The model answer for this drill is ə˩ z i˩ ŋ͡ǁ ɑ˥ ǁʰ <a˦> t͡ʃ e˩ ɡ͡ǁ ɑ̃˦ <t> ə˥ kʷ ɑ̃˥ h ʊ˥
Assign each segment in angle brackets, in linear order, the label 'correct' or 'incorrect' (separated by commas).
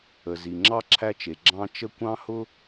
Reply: incorrect, incorrect